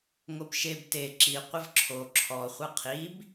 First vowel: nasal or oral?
oral